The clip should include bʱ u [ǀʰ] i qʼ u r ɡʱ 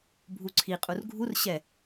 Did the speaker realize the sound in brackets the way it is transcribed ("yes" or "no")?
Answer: yes